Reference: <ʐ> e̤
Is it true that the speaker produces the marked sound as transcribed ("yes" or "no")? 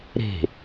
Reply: no